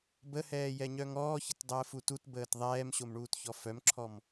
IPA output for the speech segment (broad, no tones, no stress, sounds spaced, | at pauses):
b ə h ɛː j ɛ ɲ œ ŋ ɔː ç ə t dˤ əː f u t u t b əː t ðˤ ɛː m ɕ o m ɳ uː t ç ɔ f œ m ǁʰ ɔ m